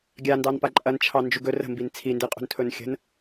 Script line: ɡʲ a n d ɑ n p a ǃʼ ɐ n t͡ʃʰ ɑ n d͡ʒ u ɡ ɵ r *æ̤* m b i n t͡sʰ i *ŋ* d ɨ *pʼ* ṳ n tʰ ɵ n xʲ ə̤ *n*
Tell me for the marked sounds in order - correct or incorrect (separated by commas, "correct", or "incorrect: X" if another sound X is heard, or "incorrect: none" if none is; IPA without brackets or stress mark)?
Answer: incorrect: ə̤, incorrect: n, incorrect: qʼ, correct